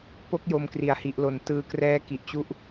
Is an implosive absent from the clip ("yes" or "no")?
yes